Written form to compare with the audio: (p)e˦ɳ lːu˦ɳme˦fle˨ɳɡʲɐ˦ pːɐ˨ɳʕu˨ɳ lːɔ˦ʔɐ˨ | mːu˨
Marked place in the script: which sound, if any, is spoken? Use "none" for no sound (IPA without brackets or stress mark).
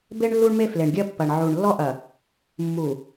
b